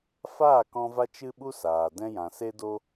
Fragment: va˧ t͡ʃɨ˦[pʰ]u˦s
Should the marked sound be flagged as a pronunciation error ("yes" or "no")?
yes